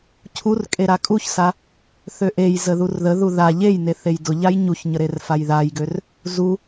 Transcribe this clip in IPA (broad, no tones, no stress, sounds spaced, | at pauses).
cʰ u r kʼ e ɾ a kʼ u ç s a | θ ø ʔ e j z ə ð u r ð ə ð u ð a ʎ e j n e θ e j d ʊ ʎ a j ɲ u ç ɲ ə ɾ e r f a j ð a j ɡ ø r | z u